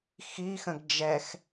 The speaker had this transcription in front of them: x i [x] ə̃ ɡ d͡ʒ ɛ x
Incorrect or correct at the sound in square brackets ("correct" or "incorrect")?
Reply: correct